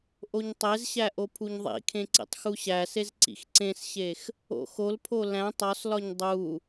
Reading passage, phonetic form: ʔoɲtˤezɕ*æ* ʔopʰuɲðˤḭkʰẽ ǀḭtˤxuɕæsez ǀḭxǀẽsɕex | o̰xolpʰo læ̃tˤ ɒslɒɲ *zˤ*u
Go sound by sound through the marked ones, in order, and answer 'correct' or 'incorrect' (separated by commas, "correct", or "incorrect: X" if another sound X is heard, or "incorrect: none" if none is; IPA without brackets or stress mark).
correct, incorrect: dˤ